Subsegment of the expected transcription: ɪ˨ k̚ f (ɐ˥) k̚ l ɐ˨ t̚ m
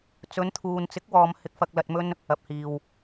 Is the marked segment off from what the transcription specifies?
yes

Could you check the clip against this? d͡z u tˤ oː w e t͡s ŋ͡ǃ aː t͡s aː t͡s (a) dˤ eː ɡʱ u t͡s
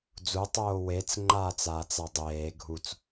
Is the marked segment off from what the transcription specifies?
no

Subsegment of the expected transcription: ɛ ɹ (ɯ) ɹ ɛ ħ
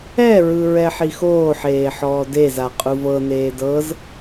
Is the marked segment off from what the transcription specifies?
no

